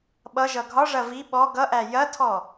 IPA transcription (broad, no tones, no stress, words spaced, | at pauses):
ɓʌʒʌ ɡʱɒʐɐ vi ɓɔ ɡʌʔæ jɐtʰɔ